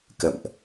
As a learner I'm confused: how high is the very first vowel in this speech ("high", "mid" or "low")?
mid